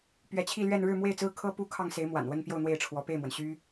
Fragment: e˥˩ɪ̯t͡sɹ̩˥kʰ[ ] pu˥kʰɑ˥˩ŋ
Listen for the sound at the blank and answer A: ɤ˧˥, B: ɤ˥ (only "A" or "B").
B